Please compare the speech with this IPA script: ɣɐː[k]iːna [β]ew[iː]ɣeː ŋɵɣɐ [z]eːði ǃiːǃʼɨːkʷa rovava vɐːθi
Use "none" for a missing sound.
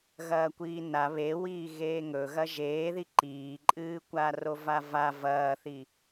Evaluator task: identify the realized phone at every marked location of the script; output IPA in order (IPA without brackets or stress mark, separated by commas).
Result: kʷ, β, iː, ʒ